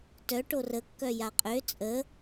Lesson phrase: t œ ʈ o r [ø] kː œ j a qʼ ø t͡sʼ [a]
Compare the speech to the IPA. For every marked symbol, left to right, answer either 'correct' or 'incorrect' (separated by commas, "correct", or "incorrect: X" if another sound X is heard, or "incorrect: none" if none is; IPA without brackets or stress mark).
incorrect: ə, incorrect: ə